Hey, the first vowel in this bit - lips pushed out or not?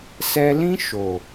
no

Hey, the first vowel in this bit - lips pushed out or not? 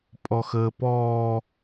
yes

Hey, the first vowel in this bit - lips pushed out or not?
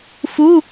yes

